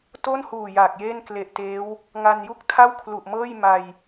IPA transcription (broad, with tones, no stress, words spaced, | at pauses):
to˥˩nhuː˨˩ jaː˨˩k̚jeː˥˩n kle˨˩ʔ teː˦˥w | ŋa˧nju˥˩k̚tʰa˥˩w kʰlu˨˩ʔmɤː˥˩j ma˧j